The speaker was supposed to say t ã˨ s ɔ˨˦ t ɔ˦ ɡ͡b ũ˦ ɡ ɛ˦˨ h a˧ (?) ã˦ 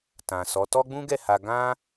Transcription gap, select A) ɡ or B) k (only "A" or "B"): A